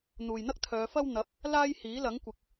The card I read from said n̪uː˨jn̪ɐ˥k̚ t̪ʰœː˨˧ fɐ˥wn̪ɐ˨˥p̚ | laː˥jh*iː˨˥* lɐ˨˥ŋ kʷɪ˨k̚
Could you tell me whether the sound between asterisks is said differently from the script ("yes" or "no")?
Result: no